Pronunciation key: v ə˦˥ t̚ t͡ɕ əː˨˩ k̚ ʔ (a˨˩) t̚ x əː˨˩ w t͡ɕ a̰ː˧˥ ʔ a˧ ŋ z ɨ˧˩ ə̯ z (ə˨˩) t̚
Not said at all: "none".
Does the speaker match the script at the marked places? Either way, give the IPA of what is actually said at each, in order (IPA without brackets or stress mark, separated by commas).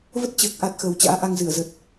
a˨˩, ə˨˩